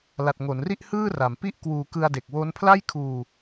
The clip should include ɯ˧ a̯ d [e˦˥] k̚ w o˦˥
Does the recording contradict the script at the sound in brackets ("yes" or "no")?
yes